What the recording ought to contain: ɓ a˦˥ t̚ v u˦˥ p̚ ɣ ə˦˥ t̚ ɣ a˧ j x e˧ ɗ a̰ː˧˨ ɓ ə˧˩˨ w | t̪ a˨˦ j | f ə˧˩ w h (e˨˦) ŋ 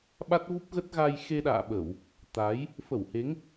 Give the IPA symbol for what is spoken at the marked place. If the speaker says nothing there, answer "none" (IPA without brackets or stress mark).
e˨˦